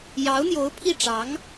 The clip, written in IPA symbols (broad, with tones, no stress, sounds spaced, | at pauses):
j ɑ˧˥ ʊ̯ n̪ j o˧˥ ʊ̯ pʰ i˥˩ ʈ͡ʂ ɑ˧˥ ŋ